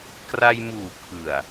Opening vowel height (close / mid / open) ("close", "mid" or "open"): open